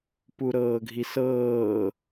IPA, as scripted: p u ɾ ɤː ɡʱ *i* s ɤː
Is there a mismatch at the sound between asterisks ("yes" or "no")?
no